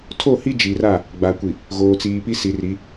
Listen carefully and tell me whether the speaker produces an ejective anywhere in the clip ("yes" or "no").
no